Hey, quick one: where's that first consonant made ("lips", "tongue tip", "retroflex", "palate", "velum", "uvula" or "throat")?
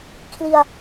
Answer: velum